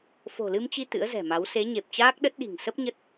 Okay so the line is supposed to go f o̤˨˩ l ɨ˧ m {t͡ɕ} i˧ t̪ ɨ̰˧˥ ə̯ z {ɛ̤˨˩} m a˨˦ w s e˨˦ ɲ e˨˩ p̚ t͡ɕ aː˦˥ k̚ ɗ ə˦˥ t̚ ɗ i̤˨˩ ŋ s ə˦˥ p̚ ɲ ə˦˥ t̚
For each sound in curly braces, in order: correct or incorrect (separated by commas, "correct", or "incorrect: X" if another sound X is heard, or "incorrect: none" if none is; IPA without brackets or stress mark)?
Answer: correct, correct